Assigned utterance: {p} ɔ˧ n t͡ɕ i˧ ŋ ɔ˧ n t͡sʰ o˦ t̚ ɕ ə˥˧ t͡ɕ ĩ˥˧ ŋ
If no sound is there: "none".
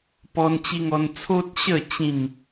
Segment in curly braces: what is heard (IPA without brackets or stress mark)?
p